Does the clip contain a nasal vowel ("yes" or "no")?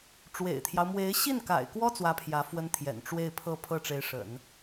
no